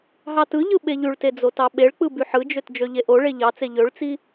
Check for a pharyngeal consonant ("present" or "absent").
present